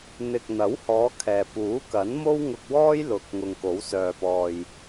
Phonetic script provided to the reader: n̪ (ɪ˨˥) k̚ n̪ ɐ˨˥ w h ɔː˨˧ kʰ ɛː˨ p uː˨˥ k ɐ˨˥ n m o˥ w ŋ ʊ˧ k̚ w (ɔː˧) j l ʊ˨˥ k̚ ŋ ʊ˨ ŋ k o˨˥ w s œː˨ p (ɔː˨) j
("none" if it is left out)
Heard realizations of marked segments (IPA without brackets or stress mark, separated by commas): ɪ˨, ɔː˥, ɔː˨